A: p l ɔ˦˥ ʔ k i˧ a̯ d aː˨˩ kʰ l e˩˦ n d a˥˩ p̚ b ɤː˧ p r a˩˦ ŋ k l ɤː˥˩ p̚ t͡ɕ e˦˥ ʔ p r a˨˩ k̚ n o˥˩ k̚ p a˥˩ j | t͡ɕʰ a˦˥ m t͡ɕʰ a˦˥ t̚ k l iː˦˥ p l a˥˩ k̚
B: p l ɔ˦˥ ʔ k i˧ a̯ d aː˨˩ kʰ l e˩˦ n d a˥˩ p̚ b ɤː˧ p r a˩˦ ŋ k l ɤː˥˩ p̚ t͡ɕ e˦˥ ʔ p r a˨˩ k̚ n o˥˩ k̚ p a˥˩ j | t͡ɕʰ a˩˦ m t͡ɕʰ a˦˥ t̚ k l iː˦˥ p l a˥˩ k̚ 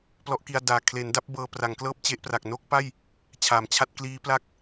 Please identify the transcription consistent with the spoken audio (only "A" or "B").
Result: B